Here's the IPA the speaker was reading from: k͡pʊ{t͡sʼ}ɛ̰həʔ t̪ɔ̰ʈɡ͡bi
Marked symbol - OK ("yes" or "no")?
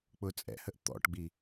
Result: yes